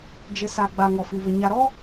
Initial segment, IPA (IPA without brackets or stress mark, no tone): d͡ʒ